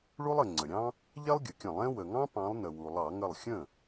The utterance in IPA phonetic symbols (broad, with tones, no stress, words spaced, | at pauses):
ɭu˥lˠə˩ ŋ͡ǀə˩ɾʲɑ̃˥ | ʎɛ˥lˠɡʲə˩kʲə̃˧˩˧lˠ ɛ̃˥ wə˩ŋɑ̃˥pɑ̃˨˦lˠnə˩ wu˩lˠɑ˧˩˧ ŋə˥˩lˠ xʲə̃˥˩